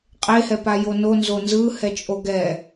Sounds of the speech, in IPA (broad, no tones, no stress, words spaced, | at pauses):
qʼehɛpajo nonzo nzɯhɛt͡ʃʼo ɡɛ